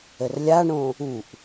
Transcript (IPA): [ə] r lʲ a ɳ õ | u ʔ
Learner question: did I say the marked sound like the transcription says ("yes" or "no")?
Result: yes